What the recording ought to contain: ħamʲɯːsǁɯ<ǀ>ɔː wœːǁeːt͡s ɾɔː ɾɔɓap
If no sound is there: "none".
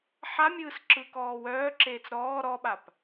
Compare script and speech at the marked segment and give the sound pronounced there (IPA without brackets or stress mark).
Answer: k